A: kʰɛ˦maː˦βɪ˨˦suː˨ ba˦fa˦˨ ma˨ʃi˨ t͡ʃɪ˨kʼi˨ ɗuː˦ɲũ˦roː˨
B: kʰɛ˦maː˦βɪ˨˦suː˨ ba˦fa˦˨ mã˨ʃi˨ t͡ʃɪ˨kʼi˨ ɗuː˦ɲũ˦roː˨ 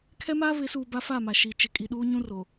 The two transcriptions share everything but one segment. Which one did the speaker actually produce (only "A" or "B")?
A